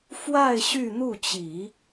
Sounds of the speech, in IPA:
fwa˥˧ɪ̯ ɕy˥˧n̪u˥˩t͡ɕi˨˩˦

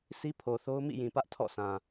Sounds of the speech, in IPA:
sʰi˦pʰo˨θo˦ʊ̯ mḭ˦˨jĩ˨pä˦ʔ tʰɔ̰˦˨sã˨

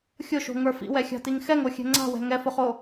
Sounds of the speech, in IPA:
xʲʊʃo̤ŋə˞ fḭwɛxʲa̤tiŋ xɛŋoxʲɛ̤ ŋ͡ǀa̤wɛ̤ ŋɛfʊχo

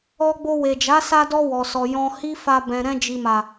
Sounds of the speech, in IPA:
ɔ˧ɡ͡bo˧we˨d͡ʒa˨˦ sa˧dɔ˧ wɔ˨sɔ˨ jɔ̃˧hi˦fa˧ bɛ̃˨ɾɛ̃˧d͡ʒi˨ma˨

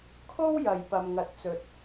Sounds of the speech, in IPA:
kʰo˥wjɐ˨j pɐ˨mŋɐ˨˥t̚t͡sɵ˨t̚

